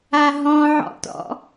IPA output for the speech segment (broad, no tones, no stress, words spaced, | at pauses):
aɦɔ̃ʕɔ̰tɔ̰